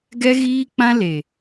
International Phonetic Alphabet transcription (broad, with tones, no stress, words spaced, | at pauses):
ɡɛ˦ɣiː˦k͡pã˦ le˨